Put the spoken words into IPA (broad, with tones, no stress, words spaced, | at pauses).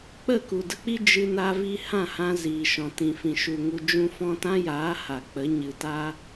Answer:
k͡pə˦˨ku˨də˧k͡pi˦ d͡ʒɨ˧na˧vi˧ hã˦˨hã˧ ziː˨ʃɔ̃˨ tĩ˨fĩ˨ ʃu˨ ŋu˧d͡ʒũ˦ fɔ̃˧tã˦jaː˨˦ ha˨k͡pə˨˦ ɲɨ˨ta˦